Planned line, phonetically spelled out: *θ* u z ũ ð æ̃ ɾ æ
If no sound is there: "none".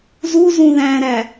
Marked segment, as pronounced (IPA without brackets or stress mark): z